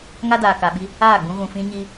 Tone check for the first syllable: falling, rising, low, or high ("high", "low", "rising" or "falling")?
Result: high